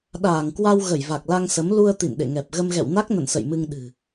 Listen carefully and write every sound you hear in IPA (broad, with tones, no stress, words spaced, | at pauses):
ɗaː˧˩ŋkwa˧w ɣə˧˩jva˨˩k̚la˧ŋsə˨˦m lu˧ə̯ t̪ḭ˧˨nɗḛ˧˨ŋɛ˨˩p̚ ɣə˧mɣɛ̰˧˨w na˦˥k̚nə̰˧˨nsə̰˧˨j mɨ˧ŋɗɨ̤˨˩